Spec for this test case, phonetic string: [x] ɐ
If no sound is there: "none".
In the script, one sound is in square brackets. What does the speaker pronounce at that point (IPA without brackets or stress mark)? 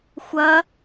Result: xʷ